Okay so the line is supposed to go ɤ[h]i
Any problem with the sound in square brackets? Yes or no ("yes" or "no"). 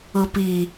yes